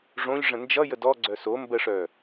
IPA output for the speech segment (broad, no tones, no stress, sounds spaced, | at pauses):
ʐ õ ʎ ʐ ə̃ n d͡ʒ ʌ j ə d ɔ ɡ͡ǀ œ s o m b ə ʂ œ